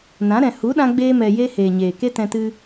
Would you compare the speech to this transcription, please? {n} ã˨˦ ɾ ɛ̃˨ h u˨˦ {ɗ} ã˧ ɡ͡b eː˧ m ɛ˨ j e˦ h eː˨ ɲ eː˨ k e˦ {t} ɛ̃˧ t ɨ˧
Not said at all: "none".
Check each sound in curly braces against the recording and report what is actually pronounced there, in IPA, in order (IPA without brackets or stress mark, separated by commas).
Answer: n, ɗ, t